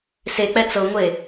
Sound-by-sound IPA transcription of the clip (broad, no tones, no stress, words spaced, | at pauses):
sek͡pɛ t͡sɤŋʷe